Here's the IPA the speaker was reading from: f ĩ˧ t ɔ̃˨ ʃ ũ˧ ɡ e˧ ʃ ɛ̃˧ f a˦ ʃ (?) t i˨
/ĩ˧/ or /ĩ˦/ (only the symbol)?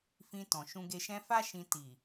ĩ˧